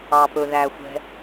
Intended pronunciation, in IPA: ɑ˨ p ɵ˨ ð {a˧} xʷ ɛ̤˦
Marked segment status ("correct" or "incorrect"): incorrect